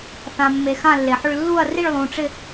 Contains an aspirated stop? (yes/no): no